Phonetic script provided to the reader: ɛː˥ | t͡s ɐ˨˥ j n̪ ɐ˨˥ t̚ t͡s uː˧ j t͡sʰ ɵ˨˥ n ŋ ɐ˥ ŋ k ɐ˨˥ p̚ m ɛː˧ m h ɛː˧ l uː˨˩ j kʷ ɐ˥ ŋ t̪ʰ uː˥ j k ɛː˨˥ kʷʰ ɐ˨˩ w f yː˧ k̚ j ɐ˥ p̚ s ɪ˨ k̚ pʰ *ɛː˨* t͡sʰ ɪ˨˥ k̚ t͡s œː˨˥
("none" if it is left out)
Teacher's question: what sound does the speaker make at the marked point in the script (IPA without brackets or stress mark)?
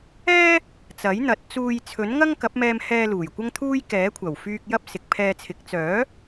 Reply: ɛː˧